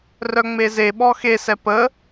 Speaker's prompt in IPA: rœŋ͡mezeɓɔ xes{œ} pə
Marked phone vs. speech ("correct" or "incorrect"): incorrect